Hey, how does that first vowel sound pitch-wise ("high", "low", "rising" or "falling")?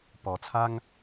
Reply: low